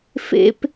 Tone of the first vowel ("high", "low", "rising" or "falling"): high